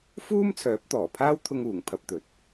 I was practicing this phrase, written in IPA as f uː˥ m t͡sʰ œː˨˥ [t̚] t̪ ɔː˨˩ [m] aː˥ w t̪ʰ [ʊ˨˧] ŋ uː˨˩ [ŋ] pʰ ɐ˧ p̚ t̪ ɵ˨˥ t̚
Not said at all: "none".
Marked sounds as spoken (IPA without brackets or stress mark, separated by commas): p̚, pʰ, ʊ˧, ŋ